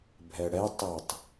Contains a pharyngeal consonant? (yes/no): no